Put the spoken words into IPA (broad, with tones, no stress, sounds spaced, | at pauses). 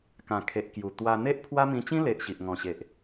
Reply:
k ã˨˩ kʰ e˨ ʔ k j u˨˩ t̪ w a˧ n̪ e˦ ʔ pʰ w a˦ m ĩ˧ t͡ɕ ĩ˦ l e˨ ʔ ɕ i˨ ʔ ŋ ɔ̃˨˩ ɕ e˨ ʔ